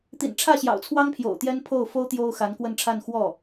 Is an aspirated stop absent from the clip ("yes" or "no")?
no